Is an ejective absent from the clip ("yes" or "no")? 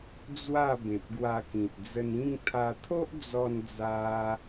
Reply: yes